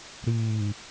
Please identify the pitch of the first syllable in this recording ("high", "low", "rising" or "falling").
low